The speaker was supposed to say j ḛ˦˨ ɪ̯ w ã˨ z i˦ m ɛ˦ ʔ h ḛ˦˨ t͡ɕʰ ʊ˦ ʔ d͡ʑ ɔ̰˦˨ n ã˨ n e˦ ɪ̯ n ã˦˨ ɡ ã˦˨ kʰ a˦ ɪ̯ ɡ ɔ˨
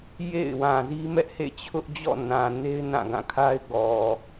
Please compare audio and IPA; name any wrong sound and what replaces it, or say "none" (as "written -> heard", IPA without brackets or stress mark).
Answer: none